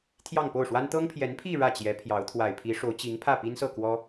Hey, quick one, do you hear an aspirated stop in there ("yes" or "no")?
yes